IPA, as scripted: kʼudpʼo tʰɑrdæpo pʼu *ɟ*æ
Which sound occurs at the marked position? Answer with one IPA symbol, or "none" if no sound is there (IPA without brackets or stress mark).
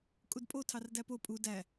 d